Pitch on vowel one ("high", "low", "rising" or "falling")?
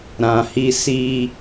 low